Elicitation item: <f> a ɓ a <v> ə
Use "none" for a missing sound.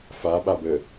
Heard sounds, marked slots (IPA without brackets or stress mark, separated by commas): f, b